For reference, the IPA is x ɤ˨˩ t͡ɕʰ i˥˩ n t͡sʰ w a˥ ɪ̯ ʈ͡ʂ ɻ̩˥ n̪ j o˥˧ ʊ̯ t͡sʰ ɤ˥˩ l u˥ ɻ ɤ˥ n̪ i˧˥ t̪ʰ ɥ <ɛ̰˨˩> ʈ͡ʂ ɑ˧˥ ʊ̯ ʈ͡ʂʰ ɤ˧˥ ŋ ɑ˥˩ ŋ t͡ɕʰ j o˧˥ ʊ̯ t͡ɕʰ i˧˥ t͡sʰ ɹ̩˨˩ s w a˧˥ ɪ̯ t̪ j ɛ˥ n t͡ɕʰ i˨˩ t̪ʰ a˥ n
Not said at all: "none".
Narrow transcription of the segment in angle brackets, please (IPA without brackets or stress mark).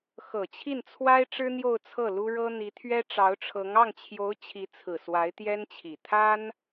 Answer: ɛ˥